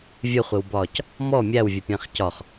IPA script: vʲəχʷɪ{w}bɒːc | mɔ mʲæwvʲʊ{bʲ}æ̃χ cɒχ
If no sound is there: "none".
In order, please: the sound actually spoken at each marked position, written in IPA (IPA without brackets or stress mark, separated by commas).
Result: w, pʲ